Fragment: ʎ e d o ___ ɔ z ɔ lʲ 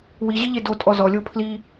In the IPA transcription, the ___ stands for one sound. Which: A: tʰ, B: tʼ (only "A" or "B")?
B